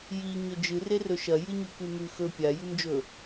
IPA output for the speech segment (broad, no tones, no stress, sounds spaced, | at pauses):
j i ɲ ɵ d͡ʒ ɨ r e r ɵ ʃ ɐ j ɨ ɲ ʉ k ʉ m ʉ x ɵ pʲ a j ʉ m d͡ʒ ɵ